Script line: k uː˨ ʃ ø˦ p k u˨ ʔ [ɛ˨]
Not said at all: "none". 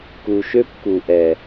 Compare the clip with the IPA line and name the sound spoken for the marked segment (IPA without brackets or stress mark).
ɛ˨